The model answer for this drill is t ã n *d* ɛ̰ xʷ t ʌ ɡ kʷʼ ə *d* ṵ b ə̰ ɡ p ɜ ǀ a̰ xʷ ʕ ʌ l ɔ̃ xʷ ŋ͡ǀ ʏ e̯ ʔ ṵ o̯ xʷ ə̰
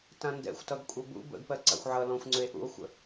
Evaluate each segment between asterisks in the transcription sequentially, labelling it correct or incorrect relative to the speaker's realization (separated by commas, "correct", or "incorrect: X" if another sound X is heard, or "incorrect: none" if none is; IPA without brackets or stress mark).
correct, incorrect: b